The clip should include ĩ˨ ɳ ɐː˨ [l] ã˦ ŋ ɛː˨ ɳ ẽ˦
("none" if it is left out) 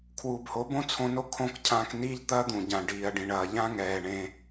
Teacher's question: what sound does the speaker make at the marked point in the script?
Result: ʎ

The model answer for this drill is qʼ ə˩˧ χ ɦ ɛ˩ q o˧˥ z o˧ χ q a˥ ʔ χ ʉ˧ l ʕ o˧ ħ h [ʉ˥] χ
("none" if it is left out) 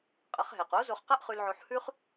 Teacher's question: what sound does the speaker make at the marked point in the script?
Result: ʉ˥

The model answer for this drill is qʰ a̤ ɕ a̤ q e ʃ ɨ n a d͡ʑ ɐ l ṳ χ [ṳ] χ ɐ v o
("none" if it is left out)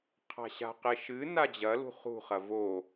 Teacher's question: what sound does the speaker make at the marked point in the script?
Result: ṳ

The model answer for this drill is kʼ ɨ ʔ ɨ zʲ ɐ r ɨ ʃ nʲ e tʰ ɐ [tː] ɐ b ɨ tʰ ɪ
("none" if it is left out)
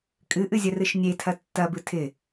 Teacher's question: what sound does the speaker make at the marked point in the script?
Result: tː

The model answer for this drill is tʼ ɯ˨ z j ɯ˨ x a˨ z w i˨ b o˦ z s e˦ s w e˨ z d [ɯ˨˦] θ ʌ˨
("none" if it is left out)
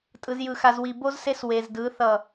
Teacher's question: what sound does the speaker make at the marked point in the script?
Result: ɯ˨˦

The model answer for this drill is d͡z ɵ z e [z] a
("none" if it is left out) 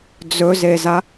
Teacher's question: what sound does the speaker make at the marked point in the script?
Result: z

